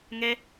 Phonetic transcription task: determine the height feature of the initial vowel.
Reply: mid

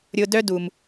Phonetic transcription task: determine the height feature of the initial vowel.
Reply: high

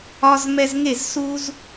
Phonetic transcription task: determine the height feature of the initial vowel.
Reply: low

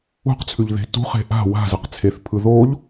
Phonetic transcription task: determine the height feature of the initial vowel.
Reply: high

